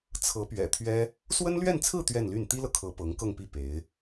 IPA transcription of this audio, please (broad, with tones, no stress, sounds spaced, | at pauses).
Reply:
t͡sʰ ɤ˧˥ p ɥ ɛ̰˨˩ t̪ʰ ɥ ɛ˥ | s w ə˥ n l ɥ ɛ˥˧ n t͡sʰ ɹ̩˥˧ t̪ ɥ ɛ˥˧ n l y˥˩ n t̪ i˥ l ɤ˨ kʰ ɤ˧˥ p ɤ˧˥ ŋ k ɤ˥˧ ŋ p i˥˩ p e˧˥ ɪ̯